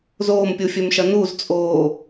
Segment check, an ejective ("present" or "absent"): present